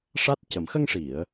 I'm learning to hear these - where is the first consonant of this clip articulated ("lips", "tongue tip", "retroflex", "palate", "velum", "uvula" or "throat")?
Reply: retroflex